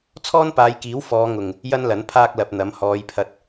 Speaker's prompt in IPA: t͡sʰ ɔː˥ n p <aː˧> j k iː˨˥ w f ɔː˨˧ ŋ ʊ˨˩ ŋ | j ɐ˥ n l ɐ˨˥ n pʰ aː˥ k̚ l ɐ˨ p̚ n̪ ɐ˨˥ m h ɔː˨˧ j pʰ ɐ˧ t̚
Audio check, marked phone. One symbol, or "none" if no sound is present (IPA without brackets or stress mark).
aː˨˧